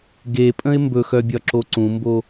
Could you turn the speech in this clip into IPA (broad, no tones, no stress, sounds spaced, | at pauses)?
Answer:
ɡ e pʼ ə̃ ɪ̯ m b ɵ x œ bʲ ɒ ǁ o ǀ ũ m b o